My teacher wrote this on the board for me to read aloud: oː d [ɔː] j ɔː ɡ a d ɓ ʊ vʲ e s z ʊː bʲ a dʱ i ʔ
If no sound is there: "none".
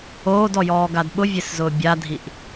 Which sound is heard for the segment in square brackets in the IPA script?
ɔ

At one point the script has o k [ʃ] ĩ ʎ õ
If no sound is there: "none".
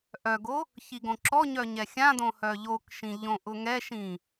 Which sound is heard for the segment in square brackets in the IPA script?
ʃ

